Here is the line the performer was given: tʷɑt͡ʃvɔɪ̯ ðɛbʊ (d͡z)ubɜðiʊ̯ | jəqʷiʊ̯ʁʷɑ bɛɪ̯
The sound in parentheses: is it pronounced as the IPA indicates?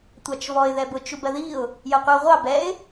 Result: no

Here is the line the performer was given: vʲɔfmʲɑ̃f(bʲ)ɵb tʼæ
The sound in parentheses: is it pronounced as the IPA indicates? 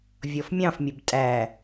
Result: no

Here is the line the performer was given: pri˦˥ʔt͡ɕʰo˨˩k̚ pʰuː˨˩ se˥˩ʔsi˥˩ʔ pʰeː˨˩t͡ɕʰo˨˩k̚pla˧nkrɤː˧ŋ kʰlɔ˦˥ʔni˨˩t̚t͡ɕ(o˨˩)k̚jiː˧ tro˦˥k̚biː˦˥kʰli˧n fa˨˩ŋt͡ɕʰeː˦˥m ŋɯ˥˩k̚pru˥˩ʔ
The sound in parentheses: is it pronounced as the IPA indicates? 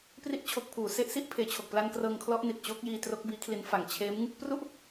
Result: no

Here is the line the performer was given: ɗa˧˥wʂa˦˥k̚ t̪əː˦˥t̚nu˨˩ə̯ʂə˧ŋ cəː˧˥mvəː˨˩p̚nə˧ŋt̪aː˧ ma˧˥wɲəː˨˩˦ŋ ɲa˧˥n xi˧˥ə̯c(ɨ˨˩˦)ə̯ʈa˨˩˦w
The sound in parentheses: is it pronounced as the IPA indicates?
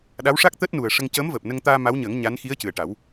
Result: no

